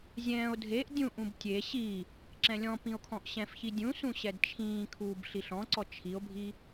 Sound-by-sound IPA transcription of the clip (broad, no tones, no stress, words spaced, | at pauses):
zʲɛ̃ːo̯ dʱeʔ dʲũʔũb tʲe ɕi | ǁɛ̃lʲɔ̃pĩo̯ kʰɔ̃ʔɕɛ̃fçi dʲũsũ ɕɛdt͡ʃʰĩːkʰuːb ɬiɬɔ̃ǀɔ t͡ʃʰio̯bʱi